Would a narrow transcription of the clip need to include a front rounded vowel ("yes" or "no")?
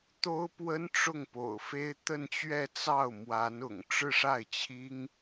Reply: no